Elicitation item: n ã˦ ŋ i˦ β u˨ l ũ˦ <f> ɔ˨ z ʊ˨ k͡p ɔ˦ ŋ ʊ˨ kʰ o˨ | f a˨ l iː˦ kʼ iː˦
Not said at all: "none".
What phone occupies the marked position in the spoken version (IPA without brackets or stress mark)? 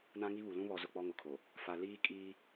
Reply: β